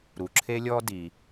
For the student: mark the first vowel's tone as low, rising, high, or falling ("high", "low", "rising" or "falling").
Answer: low